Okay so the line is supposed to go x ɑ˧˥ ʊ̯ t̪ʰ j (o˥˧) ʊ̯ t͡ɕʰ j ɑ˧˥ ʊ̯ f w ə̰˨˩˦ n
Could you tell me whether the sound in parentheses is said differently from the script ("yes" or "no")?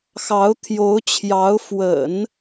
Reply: yes